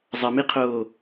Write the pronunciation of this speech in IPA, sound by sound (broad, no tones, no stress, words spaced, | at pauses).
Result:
zˤɐmiqʰoː